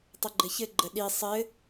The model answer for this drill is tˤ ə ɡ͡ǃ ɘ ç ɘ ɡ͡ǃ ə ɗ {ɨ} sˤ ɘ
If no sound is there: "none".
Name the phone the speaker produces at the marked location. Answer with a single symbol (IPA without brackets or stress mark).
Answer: i